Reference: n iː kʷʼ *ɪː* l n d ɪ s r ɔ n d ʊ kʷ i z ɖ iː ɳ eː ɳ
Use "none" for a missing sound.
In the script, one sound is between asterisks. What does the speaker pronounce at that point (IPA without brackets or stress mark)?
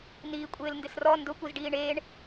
ɪː